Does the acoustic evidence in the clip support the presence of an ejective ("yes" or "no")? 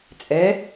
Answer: yes